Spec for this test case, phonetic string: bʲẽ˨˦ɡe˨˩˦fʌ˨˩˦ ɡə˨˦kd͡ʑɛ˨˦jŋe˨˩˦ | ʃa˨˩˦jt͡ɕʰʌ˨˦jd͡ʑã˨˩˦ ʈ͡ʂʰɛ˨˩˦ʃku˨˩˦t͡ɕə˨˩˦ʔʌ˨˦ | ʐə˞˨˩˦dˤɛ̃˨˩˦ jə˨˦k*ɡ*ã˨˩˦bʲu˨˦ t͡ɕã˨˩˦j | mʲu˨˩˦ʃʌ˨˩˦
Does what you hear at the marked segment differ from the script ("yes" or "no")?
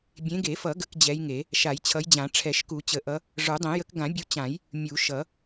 no